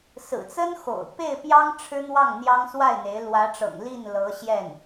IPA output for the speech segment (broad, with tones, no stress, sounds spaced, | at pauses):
s ɹ̩˨˩ t͡s ə˥ n x o̰˨˩ ʊ̯ p e˥˩ ɪ̯ p j ɑ˥ ŋ ʈ͡ʂʰ ɻ̩˥ n̪ w ɑ˥˩ ŋ n̪ j ɑ˥ ŋ s w a˥˩ ɪ̯ n̪ e˧˥ ɪ̯ l w ä˧˥ ʈ͡ʂ ɤ̰˨˩ ŋ l i˥˩ n l ɤ˧˥ ɕ j ɛ˥˩ n